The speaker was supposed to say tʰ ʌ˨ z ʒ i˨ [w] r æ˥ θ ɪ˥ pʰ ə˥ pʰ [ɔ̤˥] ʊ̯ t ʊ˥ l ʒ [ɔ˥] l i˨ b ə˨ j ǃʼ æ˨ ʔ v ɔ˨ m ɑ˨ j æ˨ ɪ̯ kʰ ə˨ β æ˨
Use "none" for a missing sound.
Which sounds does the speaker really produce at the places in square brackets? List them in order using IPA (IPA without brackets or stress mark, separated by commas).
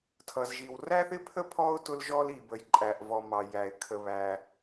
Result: w, ɔ˥, ɔ˥